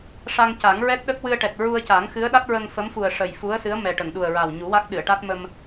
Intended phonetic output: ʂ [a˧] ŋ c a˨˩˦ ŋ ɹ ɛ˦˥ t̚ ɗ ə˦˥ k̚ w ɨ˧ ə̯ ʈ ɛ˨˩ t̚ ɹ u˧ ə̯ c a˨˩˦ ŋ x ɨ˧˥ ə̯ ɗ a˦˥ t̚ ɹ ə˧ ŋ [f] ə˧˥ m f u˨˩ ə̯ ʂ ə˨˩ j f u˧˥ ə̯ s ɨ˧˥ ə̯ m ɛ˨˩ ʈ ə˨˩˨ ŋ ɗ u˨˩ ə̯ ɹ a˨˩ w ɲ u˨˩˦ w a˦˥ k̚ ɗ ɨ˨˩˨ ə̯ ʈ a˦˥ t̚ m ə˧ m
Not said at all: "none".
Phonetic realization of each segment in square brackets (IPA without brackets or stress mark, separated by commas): a˧, f